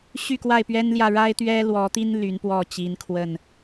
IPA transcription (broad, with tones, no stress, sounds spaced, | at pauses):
ɕ y˥˨ k w a˥˨ ɪ̯ p ɥ ɛ˦ n l j ä˥˨ ɻ a˦ ɪ̯ t̪ ɥ ɛ˦ l w ɔ˨˦ t̪ i˦ n l y˨˦ n p w ɔ˥˨ t͡ɕ i˨˦ n kʰ w ə˥˨ n